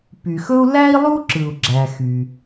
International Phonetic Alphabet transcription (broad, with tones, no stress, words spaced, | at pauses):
py˩xɵ˥u̯ læ˥i̯lˠu˥ǁɯ˩u̯ ɡ͡ǁæ˩ xy˩